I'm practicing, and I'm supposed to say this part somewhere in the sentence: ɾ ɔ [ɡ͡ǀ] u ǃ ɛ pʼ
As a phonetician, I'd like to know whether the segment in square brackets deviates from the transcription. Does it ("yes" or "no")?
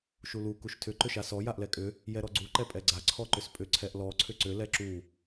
no